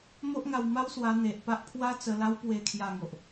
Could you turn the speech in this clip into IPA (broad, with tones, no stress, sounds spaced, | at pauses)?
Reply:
m o˦ ʔ ŋ a˧ w m a˦ w s w a˧ n̪ e˨ ʔ p a˦ ʔ pʰ w a˦ t͡s ə˧ l a˧ w p w e˨˩ kʰ j a˨˩ ŋ o˨ ʔ